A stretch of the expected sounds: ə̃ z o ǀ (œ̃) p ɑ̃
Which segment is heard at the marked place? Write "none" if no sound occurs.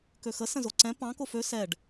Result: ɛ̃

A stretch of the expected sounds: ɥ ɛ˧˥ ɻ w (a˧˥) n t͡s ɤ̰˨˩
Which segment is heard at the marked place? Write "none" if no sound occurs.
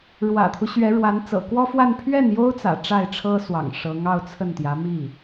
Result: a˧˥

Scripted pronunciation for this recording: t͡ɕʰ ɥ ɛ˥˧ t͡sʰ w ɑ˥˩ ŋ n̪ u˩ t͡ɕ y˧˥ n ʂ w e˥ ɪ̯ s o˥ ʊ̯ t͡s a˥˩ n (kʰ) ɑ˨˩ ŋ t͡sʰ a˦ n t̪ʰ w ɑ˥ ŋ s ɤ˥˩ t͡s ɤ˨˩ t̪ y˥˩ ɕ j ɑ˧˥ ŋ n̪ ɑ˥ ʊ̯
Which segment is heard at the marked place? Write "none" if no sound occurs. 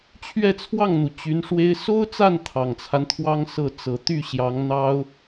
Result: t̪ʰ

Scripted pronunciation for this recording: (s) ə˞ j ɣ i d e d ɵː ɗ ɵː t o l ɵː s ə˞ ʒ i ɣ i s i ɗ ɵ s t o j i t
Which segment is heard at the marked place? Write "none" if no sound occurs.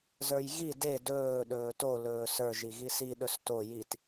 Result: z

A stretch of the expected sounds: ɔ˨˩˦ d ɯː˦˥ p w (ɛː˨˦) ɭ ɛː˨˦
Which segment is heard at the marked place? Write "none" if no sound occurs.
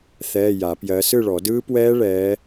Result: ɛː˦˥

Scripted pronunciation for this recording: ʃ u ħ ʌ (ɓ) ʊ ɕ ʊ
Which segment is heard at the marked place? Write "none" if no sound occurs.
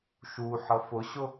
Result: f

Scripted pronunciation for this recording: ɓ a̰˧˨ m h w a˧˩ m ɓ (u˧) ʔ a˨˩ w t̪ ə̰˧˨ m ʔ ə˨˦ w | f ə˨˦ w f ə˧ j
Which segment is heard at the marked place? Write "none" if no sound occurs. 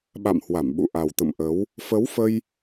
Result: ṵ˧˨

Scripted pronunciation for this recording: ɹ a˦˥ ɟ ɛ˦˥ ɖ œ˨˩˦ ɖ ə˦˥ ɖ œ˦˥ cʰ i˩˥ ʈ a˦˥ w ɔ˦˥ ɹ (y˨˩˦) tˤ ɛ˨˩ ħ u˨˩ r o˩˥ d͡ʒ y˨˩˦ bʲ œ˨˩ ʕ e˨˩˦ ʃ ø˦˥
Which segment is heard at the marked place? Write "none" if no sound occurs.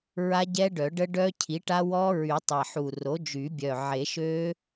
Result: y˨˩˦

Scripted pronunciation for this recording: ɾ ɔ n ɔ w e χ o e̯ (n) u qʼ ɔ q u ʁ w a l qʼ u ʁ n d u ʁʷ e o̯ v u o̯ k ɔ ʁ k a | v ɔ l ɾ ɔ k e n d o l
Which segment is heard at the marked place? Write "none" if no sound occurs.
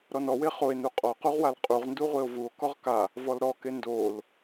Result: n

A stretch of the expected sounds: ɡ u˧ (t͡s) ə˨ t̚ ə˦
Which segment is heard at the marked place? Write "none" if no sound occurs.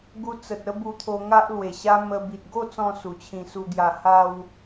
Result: t͡s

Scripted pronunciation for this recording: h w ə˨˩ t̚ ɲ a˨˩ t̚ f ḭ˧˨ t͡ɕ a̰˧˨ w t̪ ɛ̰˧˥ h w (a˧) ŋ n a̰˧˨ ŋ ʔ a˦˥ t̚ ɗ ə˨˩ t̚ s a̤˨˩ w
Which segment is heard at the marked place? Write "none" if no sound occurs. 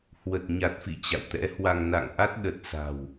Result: a˧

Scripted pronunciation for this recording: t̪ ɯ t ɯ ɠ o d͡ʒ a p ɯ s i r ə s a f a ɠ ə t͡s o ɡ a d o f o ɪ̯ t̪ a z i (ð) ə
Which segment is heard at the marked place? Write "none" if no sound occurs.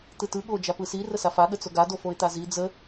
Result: d͡z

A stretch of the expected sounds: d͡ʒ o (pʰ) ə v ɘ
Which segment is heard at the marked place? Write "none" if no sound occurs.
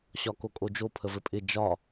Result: pʰ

